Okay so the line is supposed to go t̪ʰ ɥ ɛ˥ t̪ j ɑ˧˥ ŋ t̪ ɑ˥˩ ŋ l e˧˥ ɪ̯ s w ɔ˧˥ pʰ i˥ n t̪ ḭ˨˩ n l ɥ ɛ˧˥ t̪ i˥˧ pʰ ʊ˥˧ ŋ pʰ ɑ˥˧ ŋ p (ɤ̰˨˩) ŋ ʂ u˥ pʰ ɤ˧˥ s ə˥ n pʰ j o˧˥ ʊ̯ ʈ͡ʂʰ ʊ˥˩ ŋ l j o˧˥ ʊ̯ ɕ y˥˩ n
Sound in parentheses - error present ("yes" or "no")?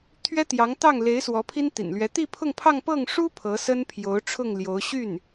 yes